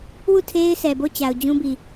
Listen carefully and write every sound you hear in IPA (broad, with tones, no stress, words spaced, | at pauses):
wu˦˨ tʰe˦ɪ̯sɛ˨bo˦˨ t͡ɕa˨ʊ̯d͡ʑũ˦bi˨